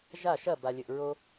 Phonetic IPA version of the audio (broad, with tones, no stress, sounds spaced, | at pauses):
ʒ a˥˩ ʃ ɐ˥˩ b a˩ lʲ ɘ˩ ʔ ɹ o˥